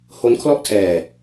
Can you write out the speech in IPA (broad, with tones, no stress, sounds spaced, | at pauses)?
h o˦˥ n kʰ l ɔ˥˩ ʔ tʰ ɛː˧